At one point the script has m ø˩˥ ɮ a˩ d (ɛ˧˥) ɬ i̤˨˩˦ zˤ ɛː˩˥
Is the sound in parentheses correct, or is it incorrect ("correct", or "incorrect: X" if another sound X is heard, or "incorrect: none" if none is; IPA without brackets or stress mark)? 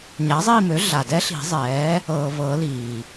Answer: correct